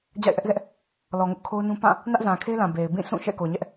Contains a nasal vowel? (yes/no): yes